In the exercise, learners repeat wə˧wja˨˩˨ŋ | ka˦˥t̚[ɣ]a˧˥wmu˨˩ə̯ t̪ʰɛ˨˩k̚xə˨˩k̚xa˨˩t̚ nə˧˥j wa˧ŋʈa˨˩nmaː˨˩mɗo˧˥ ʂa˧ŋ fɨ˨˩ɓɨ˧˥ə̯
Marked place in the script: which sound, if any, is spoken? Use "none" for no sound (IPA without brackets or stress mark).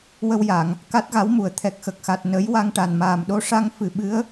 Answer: ɣ